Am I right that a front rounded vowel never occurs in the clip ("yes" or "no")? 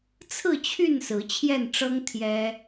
no